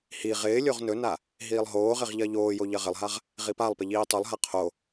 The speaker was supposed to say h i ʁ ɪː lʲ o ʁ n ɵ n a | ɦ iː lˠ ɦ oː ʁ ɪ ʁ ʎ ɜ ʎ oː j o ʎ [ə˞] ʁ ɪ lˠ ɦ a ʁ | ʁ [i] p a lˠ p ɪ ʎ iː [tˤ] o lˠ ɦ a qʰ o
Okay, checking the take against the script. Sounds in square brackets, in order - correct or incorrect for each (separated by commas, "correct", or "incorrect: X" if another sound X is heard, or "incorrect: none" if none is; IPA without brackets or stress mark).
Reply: incorrect: ɜ, correct, correct